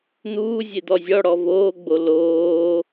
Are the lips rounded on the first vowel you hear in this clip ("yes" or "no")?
yes